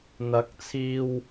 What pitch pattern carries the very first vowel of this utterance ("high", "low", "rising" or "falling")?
rising